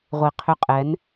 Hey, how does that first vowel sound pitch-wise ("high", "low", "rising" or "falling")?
low